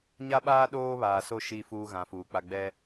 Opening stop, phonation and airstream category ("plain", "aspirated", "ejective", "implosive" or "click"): implosive